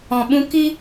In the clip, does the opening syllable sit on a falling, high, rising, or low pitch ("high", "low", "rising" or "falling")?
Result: low